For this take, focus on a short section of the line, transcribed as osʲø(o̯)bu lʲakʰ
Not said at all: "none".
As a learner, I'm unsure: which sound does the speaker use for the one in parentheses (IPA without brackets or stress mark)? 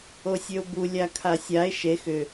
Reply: o̯